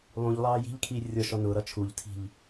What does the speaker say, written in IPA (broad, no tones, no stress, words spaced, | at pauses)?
lˠũʎlˠɑː ji̤ʎkʰiː rʲɔʃɔ nʊːɾʌ t͡ʃʰuʎtʰi̤ʎ